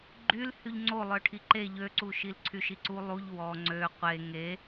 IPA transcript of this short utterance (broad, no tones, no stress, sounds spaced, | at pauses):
ɡ͡ǃ y l h y ʎ ŋ͡ǀ o lˠ œ ʈʰ i ǃ e ʎ ø ǀ u ʃ i l ǀʰ y ʃ i ǀ u lˠ u ʎ w ɔ ŋ͡ǀ ø qʷ e ŋ e